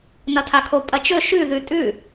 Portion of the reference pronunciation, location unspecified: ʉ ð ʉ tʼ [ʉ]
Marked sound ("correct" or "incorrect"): correct